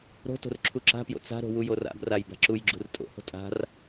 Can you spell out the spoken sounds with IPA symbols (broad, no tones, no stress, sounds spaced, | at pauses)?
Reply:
ɾ o̤ t o̤ r ǁʰ u ǁ a̤ p j o̰ t͡s a̤ ɾ o̤ w u j o r a̰ b r a j b a̤ ǁ u j ɡ͡ǁ ṳ r tʼ o̰ h o̤ tʼ a̤ r